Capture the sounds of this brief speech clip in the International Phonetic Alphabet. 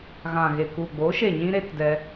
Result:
ɣã˨ɣe˨ku˨ɡ͡boː˨˦ ʃe˦˨ɲĩ˦ɾe˦t dɛ˦

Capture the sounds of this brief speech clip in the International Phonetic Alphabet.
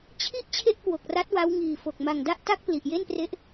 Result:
t͡ɕʰi˥˩ʔ t͡ɕʰe˥˩ʔkwo˨˩k̚ra˦˥t̚ wa˦˥wŋiː˨˩fo˨˩k̚ ma˨˩ŋda˥˩ʔta˥˩k̚ pli˨˩ʔje˥˩npre˦˥ʔ

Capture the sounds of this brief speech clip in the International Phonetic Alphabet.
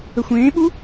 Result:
əxʷẽːɓu

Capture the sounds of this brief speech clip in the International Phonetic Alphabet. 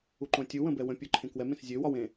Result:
uǃõtʲuwə̃ bɛwə̃pʲə˞ ǃʰẽkwɛmẽs zʲøwɒw ẽ

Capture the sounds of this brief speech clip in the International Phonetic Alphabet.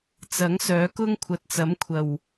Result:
t͡sɐ˨˥ŋsœː˨˥kʊ˥ŋ kʷʰɐ˨t̚t͡sɐ˨˥mkʷʰɐ˨˩w

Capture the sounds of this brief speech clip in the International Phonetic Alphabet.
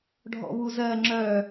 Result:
ɖʱɔ̰βuzɜ ŋ͡ǁœ

